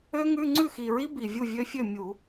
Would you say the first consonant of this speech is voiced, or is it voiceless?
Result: voiced